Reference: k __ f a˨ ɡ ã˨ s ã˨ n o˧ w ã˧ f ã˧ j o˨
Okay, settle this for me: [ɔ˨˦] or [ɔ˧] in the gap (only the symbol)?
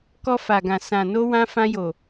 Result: ɔ˧